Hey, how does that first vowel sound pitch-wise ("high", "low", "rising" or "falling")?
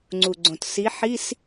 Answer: low